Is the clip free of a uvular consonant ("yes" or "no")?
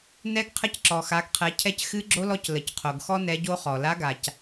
no